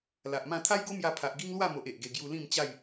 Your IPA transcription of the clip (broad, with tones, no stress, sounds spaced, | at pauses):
l a˨ ʔ m ã˥˧ t̪ʰ a˦ j ɡ o˦ m j a˧ pʰ a˨ ʔ ɡ i˦ ŋ l w a˥˧ m o˨ ʔ e˨ ʔ ɡ e˧ ɡ j u˧ l ĩ˥˧ m t͡ɕ a˥˧ j